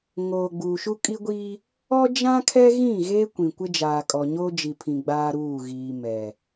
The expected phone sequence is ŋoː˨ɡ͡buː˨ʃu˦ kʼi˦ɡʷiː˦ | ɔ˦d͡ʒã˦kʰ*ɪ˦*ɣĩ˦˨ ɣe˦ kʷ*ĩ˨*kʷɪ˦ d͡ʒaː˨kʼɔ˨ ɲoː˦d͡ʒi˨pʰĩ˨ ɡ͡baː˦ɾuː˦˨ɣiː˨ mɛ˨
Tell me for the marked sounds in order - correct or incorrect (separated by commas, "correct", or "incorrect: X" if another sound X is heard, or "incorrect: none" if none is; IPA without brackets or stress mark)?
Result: incorrect: ɛ˦, correct